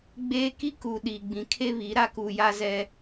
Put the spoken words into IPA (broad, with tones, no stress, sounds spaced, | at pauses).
ɡ͡b eː˦ k i˦ k u˨ ɗ i˨ ɡ͡b ĩ˨ kʰ e˦ β i˨˦ ɾ a˦ k uː˨ j a˦ z ɛ˦